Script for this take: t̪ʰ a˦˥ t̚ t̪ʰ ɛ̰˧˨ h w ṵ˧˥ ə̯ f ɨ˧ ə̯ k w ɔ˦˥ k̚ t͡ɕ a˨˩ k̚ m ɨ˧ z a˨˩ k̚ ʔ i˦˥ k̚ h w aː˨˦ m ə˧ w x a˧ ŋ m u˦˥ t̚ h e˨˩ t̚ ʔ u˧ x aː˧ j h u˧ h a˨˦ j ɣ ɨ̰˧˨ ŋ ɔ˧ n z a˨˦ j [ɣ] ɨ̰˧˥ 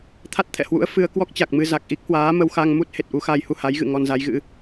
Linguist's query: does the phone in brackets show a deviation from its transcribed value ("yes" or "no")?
no